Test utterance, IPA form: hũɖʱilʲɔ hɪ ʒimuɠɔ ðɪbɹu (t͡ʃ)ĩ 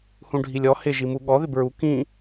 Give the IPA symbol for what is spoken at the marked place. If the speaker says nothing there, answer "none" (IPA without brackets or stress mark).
k